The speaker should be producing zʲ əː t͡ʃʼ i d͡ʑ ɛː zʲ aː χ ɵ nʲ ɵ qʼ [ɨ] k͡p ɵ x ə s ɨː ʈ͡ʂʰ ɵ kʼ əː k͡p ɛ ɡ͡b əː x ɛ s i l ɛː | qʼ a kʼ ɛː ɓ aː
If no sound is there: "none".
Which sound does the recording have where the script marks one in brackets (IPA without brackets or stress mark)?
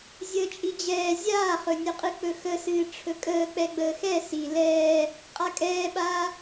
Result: ɨ